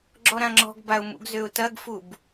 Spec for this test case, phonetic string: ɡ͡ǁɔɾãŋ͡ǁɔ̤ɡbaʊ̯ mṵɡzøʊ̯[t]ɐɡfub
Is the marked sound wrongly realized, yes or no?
no